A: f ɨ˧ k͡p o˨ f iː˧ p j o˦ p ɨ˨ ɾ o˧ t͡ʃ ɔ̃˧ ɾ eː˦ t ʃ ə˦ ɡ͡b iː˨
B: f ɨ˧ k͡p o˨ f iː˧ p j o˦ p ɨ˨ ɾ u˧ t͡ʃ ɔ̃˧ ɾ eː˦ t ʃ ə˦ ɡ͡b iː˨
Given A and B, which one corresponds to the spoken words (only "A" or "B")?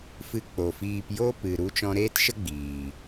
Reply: B